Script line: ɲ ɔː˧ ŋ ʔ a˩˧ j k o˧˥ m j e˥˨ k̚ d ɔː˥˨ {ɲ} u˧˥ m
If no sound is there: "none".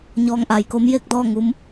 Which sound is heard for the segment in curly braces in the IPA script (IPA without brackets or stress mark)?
ŋ